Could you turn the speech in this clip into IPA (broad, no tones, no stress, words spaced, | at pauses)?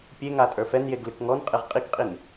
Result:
pʲeŋa tʼə˞fɛnjeɡ lɨkŋɔnqʼeʁ qʼikqʼin